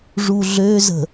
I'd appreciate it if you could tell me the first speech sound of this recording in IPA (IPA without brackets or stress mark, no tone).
ʐ